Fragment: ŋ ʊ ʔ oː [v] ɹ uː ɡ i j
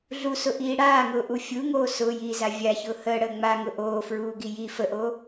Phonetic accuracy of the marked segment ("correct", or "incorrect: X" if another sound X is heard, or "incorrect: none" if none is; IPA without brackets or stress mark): incorrect: f